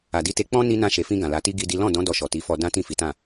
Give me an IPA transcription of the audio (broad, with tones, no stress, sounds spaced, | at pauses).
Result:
a˨ d i˧ t e˧ k͡p ɔ̃˦ n i˦ n ã˧ ʃ e˨ f ĩ˧ ɡ ã˨ l a˨˦ t i˦ ɡ i˦ d i˦ l ɔ̃˦˨ d ɔ̃˨˦ d ɔ˧ ʃ ɔ˨ t i˨˦ f ɔ˧ d ã˦ t ĩ˦˨ f i˨˦ t ã˦˨